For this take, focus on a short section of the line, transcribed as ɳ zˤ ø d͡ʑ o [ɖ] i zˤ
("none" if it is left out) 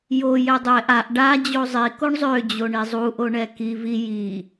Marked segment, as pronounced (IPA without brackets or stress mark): ɳ